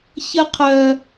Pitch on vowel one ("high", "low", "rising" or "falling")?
high